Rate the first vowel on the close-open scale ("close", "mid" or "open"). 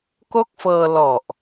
mid